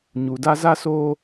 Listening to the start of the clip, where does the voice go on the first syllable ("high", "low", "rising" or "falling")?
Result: low